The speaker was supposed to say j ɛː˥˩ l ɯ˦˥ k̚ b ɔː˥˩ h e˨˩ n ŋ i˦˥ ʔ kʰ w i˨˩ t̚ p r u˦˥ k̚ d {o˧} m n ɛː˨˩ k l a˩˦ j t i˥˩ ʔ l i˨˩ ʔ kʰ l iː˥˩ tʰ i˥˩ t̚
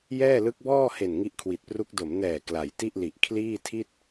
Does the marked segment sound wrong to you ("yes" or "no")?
yes